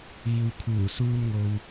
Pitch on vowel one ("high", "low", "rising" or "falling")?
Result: low